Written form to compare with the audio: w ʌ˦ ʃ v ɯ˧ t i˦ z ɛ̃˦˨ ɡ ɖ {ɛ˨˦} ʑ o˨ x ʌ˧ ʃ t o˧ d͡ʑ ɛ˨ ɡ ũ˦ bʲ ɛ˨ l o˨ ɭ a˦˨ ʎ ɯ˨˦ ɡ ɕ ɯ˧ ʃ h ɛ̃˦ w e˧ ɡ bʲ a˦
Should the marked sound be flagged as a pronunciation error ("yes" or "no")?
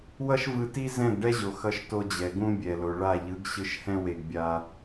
yes